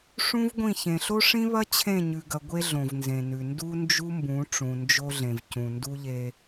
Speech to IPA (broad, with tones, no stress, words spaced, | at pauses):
ʂũ˦vɡʷĩ˦˨ çẽ˨ɬo˦ʂĩ˦βɐ˦ t͡ɕʰẽ˦˨ɲʉ˨ɡɐ˨ ɡʷe˦ɮõ˨vnzẽ˨nʉ˨ ndu˦nd͡ʒu˦mbũ˨˦ ʈ͡ʂũ˨nd͡ʒo˦ɮẽ˨vcũ˨ ndu˦ʎe˦